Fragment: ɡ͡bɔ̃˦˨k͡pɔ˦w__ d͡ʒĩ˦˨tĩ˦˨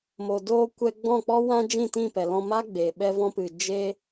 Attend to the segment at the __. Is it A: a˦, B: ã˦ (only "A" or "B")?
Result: B